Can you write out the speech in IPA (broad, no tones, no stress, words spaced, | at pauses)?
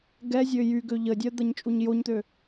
ɡɛzʲø jyɡø ʎədʲœd̪ɐɲ t͡ʃʼuɲjoɲt̪ø